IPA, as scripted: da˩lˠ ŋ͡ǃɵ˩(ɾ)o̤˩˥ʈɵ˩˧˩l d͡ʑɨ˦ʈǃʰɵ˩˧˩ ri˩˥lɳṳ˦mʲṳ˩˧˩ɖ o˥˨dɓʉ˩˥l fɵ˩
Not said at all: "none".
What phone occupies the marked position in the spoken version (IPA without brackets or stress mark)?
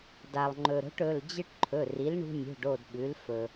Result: ɾ